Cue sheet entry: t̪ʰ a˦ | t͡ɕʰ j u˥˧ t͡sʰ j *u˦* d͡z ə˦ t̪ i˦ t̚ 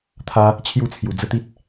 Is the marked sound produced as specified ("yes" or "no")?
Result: no